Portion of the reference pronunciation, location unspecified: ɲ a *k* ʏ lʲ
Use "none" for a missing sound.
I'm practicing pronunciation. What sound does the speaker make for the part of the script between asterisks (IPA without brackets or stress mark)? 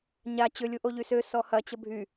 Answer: t͡ɕ